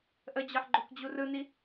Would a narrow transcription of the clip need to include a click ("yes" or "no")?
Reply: yes